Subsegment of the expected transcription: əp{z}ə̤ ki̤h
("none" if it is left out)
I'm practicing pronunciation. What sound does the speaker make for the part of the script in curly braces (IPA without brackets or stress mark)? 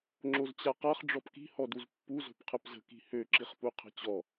z